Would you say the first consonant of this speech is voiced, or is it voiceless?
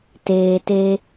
voiceless